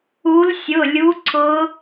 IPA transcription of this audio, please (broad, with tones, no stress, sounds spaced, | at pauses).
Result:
u˨˦ l sʲ ʊ˩˧˩ lʲ u˨˦ ǀ ʊ˨˦